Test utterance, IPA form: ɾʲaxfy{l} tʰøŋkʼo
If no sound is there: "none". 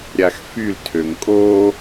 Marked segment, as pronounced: l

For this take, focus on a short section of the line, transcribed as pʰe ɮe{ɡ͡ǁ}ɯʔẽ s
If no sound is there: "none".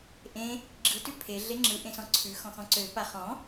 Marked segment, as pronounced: ŋ͡ǁ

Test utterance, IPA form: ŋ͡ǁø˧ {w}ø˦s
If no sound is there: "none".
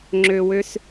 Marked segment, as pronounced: w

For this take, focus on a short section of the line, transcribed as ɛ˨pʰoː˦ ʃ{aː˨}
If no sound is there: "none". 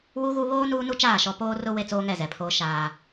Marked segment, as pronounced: aː˦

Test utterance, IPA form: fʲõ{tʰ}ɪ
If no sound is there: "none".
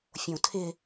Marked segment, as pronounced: tʰ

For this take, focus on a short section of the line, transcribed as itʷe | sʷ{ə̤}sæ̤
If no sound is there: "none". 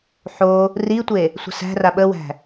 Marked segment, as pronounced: ə̤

